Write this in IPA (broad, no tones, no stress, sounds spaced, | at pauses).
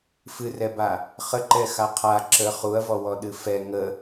f ɨ r ɛ b a | χ ə ǃ ɛ x a qʰ a ǁ ə χ u ɐ̯ v ɔ w ɔ ɗ ɨ f ɛ ŋ ə